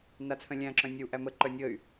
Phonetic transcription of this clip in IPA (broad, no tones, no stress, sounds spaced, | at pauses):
n a t͡sʰ œ̃ lʲ æ̃ ǁ œ̃ nʲ ə u̯ ʔ æ m ə ǃ œ nʲ ə y̯